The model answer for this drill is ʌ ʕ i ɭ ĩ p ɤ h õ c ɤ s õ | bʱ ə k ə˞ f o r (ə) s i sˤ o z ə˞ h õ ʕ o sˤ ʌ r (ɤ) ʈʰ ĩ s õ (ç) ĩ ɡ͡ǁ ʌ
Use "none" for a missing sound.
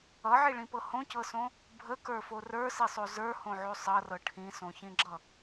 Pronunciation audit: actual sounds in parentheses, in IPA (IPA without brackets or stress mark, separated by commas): ə˞, ɤ, ç